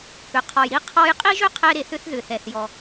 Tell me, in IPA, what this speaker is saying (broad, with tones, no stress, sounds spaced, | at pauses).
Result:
p ʏ˩ qʰ ɔ˩ j ɾ i˧ qʰ ɔ˧ j qʼ i˥ ʒ ʏ˥ qʰ ɛ˧ ɾ e˩ θ ʏ˧ θ ð ʏ˩ θ ɛ˩ θ j ɔ˩